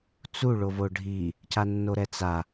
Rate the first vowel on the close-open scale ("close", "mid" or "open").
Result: close